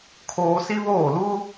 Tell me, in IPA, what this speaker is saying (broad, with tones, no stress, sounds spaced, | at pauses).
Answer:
kʰ oː˦ s i˦ β oː˦˨ l uː˦